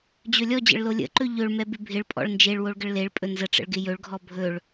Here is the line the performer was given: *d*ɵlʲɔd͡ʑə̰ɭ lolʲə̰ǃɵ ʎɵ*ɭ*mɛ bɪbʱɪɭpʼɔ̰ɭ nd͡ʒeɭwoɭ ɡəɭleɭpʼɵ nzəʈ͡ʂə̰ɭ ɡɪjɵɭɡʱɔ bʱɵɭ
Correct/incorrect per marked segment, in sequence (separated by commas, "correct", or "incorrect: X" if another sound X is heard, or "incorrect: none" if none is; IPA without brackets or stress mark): incorrect: d͡ʑ, correct